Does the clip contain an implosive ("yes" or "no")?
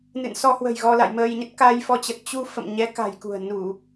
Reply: no